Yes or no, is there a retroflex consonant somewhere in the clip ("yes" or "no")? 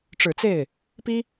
yes